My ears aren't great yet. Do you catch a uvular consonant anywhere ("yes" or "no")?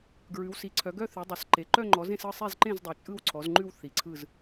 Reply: no